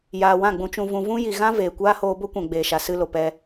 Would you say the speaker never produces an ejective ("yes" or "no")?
yes